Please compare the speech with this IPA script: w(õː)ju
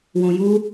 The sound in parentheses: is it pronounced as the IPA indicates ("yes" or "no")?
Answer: no